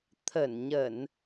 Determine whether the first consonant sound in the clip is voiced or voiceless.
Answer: voiceless